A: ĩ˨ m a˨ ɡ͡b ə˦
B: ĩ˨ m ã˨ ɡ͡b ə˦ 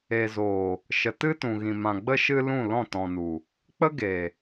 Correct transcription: B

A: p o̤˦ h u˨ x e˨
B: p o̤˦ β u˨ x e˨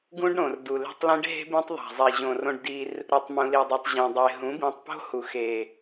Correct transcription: A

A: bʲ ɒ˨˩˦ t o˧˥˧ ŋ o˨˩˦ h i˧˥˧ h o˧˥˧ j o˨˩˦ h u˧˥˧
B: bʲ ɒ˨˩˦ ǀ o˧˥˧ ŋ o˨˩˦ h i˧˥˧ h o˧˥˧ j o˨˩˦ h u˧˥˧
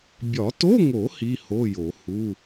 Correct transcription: A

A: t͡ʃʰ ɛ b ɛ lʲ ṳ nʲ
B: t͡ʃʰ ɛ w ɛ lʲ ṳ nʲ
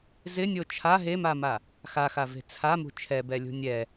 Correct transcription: A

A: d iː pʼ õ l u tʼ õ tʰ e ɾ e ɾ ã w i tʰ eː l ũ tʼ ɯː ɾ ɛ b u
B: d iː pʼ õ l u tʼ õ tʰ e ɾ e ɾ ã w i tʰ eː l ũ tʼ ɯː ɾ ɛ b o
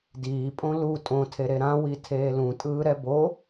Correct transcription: B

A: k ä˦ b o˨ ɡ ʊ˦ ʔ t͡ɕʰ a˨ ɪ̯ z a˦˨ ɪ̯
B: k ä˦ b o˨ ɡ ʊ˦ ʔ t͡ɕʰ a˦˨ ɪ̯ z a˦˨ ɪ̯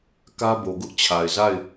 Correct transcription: A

